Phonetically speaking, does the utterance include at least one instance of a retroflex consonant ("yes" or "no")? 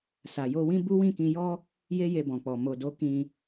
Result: no